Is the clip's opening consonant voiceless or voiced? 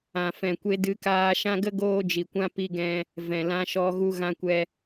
voiceless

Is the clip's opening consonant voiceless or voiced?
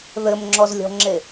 voiced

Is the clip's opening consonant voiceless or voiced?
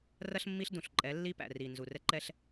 voiced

